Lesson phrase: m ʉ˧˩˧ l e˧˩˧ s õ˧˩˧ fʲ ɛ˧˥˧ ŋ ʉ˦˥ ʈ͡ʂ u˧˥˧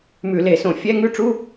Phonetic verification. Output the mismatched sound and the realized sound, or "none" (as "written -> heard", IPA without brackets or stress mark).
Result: none